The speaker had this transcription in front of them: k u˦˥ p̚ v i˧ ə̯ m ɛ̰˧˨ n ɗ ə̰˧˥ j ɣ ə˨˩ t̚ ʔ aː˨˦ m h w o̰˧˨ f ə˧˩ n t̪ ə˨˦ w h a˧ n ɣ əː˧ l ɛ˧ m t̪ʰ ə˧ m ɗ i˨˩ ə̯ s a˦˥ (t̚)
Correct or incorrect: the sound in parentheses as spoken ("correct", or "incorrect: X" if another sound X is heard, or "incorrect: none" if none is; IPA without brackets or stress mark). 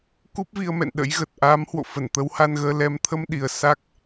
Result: incorrect: k̚